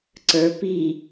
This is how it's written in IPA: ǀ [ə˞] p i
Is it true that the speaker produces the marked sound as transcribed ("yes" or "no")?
yes